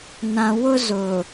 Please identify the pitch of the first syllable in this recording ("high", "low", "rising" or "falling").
low